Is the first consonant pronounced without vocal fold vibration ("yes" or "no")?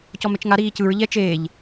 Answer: yes